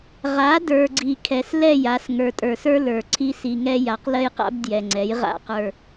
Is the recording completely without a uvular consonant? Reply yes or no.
no